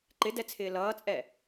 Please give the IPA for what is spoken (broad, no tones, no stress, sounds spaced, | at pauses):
ǃ ɪ d ɛ t͡sʰ ɪː l ʌː t͡sʼ ɛ